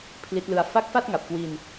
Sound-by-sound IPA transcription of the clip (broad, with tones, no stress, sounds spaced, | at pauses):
pʰ l i˦˥ t̚ l ɯ˦˥ a̯ f a˦˥ k̚ f a˥˩ t̚ ŋ a˨˩ p̚ k w i˧ n